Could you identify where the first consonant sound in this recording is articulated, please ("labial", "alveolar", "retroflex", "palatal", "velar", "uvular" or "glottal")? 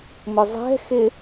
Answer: labial